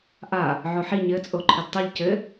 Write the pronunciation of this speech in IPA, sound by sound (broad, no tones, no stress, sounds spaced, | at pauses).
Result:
ʔ a | ʕ o ħ i ɲ ɘ t͡sʼ o ǃʰ ɘ d tˤ ɨ ʎ c ɘ